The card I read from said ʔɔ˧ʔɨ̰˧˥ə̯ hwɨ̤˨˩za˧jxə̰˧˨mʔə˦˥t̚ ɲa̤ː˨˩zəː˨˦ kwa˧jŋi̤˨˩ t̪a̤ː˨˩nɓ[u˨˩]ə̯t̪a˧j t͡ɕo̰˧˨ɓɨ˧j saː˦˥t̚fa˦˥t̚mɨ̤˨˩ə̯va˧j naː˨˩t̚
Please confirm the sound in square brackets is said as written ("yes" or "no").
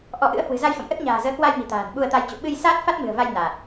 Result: no